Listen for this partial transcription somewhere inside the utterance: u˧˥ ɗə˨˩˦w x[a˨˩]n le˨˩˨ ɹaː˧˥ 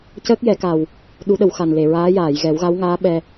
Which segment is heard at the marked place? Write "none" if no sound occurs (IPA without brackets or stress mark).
a˨˩